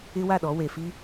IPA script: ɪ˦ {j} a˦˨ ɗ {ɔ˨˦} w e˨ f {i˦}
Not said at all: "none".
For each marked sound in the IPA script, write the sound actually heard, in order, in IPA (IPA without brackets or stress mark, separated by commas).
w, ɔ˨˦, i˦